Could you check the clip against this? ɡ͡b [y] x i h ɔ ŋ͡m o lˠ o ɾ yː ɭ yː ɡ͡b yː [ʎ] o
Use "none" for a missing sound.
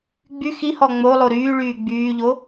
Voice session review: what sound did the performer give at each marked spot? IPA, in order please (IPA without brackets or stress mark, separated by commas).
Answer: y, ʎ